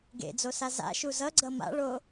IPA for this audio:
ɡ ḛ d͡z o s a z a̰ ʃ u z ʌ ɡ͡ǀ ʌ m a̰ ɭ o

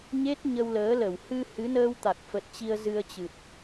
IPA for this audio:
ɲ e˦˥ t̚ ɲ ə˧ w l əː˨˦ l ə˧˩ w h ɨ˧ h ɨ˨˦ n əː˧ w t̪ a˨˩ k̚ f ə˨˩ t̚ t͡ɕ i˧ ə̯ z ɨ˧ ə̯ t͡ɕ ɨ˨˩ t̚

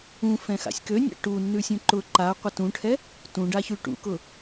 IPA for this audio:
ũ f ɛ̃ x a̰ sʲ k ø nʲ a̰ ʈ u nː ʉ sʲ ũ ǃ ʊ ǃ a qʷ a t ũ ʈʰ ɛ | t ũ ɖ a ç ʉ ʈ ṵ k ʊ

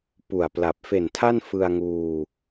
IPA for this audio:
p u˨˩ a̯ p l a˨˩ p̚ f e˨˩ n tʰ a˥˩ n f ɯ˧ a̯ ŋ uː˧

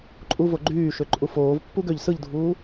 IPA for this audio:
ǃʼ u v o ɡ͡ǃ yː ʃ ø ǃʼ u f oː v pː u ɡ ø ʎ s ɯ ʎ dʱ uː

